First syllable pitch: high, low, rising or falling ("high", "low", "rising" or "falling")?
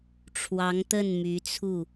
rising